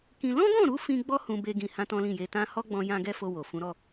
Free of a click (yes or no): yes